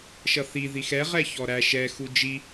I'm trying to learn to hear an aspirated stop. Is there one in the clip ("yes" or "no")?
no